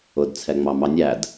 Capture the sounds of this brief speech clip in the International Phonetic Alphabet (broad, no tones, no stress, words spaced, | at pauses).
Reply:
ʊd t͡sʰɛŋ͡mɑmɑnʲæd